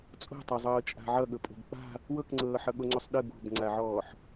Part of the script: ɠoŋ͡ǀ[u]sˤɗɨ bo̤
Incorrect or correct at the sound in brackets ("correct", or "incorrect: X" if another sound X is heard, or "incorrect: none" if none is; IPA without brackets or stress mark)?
incorrect: o